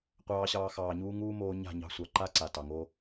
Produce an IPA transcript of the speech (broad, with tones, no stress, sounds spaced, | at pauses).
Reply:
qʷ ɑː˧ ɕ ɑː˧ x ɑː˨ ɲ uː˦ ŋ uː˦ m oː˧ ɲ a̤˦˨ ɲ ɑ̤˧ sʷ ɑ˨ ǃ a˦ ǀ a˨ t ɑ˨ ŋ o˦